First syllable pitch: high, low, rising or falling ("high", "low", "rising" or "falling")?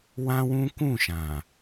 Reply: high